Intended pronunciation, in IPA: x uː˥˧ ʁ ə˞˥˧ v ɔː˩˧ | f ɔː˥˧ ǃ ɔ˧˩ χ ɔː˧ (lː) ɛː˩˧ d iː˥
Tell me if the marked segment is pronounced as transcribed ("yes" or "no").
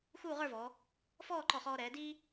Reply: no